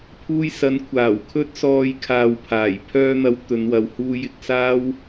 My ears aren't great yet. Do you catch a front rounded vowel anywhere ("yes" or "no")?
yes